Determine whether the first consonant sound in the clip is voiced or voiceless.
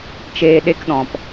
voiceless